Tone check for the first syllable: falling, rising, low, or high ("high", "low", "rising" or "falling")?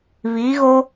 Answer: rising